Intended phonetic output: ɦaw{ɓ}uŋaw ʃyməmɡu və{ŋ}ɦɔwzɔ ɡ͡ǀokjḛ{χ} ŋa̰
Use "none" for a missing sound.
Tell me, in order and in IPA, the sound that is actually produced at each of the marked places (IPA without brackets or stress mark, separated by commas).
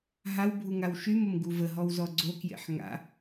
bʱ, none, ħ